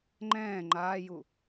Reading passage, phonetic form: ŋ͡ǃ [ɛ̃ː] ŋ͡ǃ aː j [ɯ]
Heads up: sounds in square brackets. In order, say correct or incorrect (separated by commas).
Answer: correct, incorrect